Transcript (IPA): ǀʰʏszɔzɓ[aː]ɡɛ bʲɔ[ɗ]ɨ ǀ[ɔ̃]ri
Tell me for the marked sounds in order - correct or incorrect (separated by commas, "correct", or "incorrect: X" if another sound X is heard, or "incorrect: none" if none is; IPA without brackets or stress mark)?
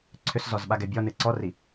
incorrect: a, incorrect: n, incorrect: ɔ